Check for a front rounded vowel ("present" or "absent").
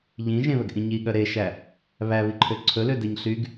present